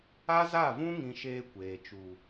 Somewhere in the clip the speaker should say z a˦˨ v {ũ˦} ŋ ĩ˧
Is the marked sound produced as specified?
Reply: yes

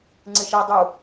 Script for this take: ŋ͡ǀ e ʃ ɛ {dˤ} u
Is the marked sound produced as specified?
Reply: yes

